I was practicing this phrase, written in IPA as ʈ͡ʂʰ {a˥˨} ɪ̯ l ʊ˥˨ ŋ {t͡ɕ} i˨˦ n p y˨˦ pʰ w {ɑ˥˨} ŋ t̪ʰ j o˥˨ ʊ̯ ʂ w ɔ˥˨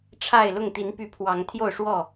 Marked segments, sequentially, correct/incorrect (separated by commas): correct, incorrect, incorrect